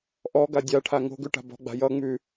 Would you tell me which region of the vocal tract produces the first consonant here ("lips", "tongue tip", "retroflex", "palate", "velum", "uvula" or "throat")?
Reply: throat